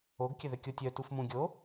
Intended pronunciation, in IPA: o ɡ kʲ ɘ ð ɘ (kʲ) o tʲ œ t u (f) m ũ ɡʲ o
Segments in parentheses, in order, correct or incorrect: correct, correct

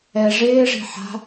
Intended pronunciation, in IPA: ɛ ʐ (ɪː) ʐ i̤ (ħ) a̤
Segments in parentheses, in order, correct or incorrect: correct, correct

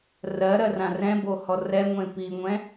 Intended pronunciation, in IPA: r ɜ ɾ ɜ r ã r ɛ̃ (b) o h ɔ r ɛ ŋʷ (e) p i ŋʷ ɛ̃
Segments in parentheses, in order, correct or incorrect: correct, incorrect

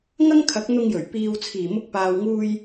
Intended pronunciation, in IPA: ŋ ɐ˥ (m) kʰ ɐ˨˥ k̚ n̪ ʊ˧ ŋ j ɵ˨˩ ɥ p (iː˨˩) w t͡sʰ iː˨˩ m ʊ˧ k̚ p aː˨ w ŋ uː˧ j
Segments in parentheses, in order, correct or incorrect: incorrect, incorrect

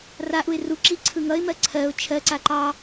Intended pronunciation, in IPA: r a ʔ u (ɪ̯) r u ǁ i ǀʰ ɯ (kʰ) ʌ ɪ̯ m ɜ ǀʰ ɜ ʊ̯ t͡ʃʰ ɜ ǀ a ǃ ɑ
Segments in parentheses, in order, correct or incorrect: correct, incorrect

